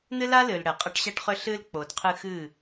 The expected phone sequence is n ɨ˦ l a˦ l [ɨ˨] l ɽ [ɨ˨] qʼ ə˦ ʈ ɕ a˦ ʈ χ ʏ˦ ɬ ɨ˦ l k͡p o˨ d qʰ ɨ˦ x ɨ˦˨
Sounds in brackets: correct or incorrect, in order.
correct, incorrect: ɛ˨

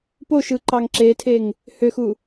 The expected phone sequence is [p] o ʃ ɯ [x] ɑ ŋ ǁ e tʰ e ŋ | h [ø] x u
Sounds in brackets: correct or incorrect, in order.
correct, incorrect: ǃ, correct

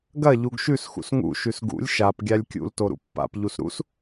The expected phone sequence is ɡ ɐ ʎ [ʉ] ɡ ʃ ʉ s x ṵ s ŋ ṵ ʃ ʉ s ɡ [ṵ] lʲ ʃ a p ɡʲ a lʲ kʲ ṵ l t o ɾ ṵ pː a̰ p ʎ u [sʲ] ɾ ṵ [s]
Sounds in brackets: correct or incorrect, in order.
incorrect: u, correct, incorrect: s, correct

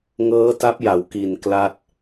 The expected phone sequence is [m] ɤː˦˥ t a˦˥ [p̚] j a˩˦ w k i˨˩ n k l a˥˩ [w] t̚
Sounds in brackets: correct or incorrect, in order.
incorrect: ŋ, correct, incorrect: none

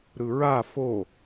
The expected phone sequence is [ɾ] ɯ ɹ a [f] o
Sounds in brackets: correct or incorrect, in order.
correct, correct

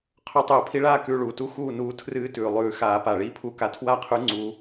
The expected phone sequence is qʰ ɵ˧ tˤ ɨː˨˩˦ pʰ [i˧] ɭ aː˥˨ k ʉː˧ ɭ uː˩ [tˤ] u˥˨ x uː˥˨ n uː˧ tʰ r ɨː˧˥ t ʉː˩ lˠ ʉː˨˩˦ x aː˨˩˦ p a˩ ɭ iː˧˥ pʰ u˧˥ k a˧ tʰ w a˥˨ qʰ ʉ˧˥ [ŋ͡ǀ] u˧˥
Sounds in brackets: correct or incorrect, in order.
correct, incorrect: t, correct

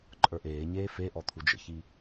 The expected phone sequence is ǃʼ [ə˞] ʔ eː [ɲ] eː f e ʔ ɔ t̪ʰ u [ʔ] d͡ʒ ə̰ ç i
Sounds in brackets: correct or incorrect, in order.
correct, correct, incorrect: none

